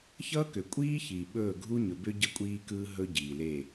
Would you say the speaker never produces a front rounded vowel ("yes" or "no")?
no